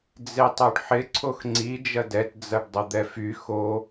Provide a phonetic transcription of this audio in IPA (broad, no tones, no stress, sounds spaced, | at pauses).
d͡z e tˤ o ɖ ħ ɪ ǀʰ o x ŋ͡ǀ i d͡ʒ ɐ d ɛ t d͡z ɐ ɖ dˤ ə d̪ ɛ f y x o